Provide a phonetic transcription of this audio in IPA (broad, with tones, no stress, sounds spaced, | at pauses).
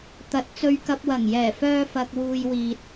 t̪ ɐ˨˥ t̚ t͡s ɵ˧ ɥ k ɐ˨ p̚ w ɐ˨˩ ŋ j ɛː˨˩ f œː˧ f ɐ˧ k̚ w uː˧ j w iː˧ t̚